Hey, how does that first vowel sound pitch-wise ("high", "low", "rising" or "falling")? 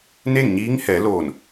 falling